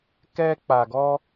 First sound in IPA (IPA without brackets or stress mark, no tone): k